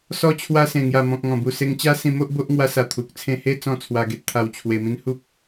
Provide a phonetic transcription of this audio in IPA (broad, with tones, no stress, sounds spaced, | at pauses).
s ɔ˧ t͡ɕʰ w a˧ s ẽ˨˩ ŋ j a˨˩ m ɔ̃˨ k̚ ŋ ɔ̃˨˩ b u˨˩ s e˧ ŋ t͡ɕ a˦ s ĩ˧ m o˦ ʔ b o˦ ʔ ŋ w a˧ s a˨˩ t̪ʰ u˨ k̚ t͡sʰ ẽ˥˧ h e˥˧ t͡s ɔ̃˥˧ t͡sʰ w a˧ ɡ e˦ t̚ t̪ʰ a˧ w t͡ɕʰ w e˧ m ĩ˦ n h u˦ p̚